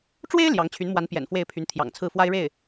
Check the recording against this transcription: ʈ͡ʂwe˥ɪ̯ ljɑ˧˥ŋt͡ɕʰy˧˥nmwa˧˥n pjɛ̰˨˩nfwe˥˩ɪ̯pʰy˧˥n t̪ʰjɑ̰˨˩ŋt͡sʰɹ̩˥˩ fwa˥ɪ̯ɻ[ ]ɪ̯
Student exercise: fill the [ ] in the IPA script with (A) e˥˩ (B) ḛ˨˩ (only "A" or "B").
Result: A